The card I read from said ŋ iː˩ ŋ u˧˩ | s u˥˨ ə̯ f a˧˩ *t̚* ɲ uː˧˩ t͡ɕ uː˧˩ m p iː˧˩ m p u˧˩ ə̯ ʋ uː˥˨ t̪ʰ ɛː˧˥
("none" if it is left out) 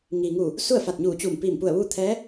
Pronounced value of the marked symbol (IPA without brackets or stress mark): t̚